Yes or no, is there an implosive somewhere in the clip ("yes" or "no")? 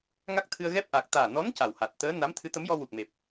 no